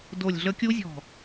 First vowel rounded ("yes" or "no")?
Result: yes